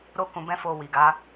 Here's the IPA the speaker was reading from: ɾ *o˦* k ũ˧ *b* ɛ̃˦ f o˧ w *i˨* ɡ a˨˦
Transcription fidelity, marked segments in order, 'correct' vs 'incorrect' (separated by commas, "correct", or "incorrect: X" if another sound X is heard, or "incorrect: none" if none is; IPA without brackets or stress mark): correct, correct, correct